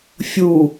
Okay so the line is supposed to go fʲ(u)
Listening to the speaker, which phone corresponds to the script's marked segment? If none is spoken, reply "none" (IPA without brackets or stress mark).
u